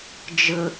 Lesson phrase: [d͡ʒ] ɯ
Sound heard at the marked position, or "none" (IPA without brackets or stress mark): d͡ʒ